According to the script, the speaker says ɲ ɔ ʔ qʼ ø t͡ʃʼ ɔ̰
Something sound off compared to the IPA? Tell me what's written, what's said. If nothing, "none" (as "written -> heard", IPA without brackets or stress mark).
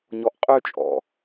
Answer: none